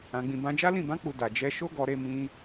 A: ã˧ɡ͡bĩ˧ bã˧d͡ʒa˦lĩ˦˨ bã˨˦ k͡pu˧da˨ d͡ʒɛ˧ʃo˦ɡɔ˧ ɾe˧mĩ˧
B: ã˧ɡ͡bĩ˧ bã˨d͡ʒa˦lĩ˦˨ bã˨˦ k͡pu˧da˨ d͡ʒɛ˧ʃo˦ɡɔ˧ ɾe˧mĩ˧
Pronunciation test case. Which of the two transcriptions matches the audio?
A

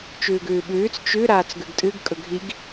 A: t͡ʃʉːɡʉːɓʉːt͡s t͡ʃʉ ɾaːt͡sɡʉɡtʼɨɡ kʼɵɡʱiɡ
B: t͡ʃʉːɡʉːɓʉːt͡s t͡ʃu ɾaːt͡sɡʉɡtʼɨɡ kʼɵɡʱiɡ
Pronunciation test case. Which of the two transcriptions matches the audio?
A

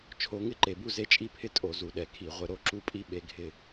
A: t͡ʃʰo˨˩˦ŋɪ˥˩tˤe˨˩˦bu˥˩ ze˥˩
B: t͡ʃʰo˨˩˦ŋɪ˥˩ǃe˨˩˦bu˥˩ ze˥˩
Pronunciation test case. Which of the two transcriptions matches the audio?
B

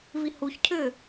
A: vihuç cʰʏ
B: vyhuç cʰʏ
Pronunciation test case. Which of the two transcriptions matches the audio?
A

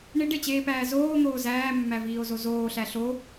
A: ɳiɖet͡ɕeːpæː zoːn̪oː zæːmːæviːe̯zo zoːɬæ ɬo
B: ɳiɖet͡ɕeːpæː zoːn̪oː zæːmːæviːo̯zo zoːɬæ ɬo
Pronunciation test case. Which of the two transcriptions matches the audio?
B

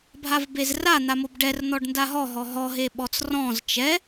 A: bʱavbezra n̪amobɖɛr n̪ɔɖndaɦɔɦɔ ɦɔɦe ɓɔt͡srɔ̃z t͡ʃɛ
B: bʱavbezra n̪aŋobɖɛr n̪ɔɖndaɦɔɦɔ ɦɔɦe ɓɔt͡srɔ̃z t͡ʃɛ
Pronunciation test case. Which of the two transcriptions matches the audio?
A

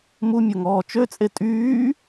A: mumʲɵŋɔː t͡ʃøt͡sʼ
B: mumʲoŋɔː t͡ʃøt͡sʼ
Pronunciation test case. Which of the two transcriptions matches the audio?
B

